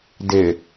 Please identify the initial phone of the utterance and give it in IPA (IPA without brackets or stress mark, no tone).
d